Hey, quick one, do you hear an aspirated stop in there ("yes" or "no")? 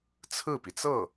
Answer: yes